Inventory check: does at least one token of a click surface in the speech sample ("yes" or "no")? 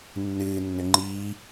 yes